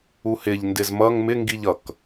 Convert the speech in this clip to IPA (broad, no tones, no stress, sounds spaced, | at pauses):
u h ɪ ʎ n d ɪ z m ʌ ŋ m ɪ ŋ ɡ i ʎ ʌ k